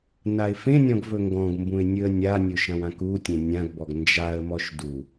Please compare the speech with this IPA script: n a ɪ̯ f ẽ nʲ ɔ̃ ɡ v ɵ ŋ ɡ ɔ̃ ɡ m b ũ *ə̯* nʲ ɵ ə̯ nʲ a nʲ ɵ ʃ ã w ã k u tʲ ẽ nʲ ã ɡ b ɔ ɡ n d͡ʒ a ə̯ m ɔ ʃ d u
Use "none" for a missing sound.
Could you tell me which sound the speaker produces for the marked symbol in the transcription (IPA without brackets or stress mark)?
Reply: ɪ̯